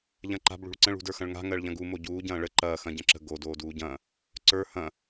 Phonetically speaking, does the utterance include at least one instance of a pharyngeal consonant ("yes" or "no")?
no